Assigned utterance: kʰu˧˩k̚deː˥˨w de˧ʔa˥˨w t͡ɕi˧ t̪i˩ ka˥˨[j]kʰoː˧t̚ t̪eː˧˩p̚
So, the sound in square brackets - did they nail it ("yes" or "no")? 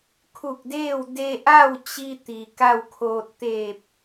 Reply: no